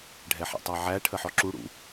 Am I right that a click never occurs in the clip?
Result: no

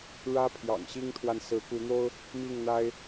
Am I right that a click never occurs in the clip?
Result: yes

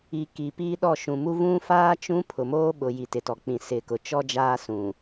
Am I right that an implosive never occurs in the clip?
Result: no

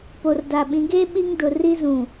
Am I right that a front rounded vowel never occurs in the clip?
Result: yes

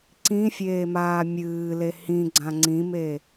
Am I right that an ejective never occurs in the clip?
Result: yes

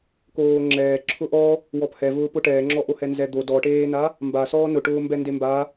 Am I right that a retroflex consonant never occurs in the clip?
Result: no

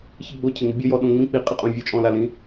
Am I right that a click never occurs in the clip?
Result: yes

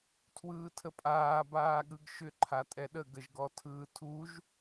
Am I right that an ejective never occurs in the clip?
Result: no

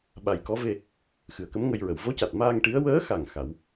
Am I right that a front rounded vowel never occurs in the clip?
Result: yes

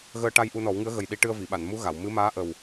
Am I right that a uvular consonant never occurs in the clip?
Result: yes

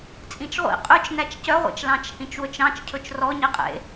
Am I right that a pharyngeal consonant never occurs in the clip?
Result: yes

